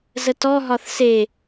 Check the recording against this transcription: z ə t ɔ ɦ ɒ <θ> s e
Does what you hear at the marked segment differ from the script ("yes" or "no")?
no